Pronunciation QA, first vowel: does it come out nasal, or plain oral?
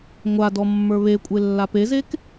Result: oral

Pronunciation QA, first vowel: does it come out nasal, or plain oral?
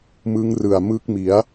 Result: oral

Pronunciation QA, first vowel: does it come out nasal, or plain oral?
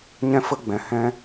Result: nasal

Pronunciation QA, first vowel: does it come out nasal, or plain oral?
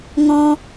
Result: nasal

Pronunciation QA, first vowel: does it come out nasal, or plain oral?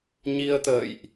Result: oral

